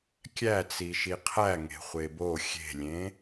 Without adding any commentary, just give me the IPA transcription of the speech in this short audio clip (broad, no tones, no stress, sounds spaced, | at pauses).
kʲ æ t͡s i ʃ i qʰ æ ŋ e̤ χʷ e b o xʲ e̤ lʲ ẽ